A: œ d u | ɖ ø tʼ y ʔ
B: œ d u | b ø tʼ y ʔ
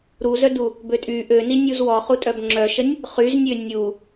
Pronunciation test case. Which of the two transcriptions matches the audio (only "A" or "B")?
B